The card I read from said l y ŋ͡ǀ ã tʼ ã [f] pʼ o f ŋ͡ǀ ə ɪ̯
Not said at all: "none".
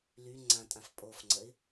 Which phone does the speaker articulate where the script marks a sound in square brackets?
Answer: f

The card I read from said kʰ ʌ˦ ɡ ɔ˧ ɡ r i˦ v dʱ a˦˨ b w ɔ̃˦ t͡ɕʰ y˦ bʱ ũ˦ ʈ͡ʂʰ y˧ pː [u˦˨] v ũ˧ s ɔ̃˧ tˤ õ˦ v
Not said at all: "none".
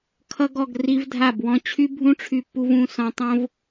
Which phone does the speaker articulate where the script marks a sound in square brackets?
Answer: u˧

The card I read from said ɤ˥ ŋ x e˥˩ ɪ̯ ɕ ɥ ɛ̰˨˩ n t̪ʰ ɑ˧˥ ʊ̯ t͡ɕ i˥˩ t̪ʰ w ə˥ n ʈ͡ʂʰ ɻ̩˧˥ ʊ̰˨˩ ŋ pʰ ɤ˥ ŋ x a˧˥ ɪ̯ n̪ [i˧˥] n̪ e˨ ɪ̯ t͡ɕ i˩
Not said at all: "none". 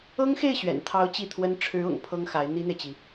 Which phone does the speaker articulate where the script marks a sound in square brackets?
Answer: i˥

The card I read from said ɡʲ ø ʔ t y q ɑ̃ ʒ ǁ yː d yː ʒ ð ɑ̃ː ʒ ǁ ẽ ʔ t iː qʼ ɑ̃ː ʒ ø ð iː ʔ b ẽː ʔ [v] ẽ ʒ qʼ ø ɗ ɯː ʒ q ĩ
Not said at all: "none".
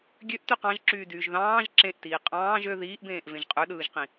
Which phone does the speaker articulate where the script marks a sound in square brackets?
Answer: v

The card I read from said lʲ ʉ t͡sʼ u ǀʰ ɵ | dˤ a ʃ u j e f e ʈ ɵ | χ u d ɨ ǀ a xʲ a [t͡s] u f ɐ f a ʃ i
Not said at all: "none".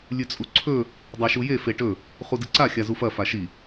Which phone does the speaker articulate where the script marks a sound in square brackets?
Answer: z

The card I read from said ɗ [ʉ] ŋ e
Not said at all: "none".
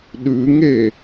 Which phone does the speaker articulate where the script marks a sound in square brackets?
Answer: ʉ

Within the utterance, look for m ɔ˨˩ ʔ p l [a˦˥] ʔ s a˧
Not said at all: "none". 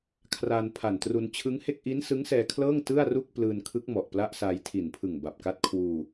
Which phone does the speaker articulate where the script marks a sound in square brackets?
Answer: a˦˥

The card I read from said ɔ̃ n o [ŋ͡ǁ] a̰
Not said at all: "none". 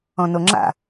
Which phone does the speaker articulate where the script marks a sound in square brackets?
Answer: ŋ͡ǁ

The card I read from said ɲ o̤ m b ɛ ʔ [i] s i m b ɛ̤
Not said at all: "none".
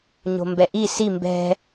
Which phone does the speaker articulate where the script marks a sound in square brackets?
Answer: i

